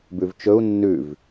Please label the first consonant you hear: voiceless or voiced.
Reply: voiced